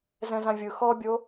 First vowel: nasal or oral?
nasal